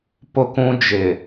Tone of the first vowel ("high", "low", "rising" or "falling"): high